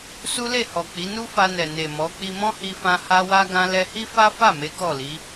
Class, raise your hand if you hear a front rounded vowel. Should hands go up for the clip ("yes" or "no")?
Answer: no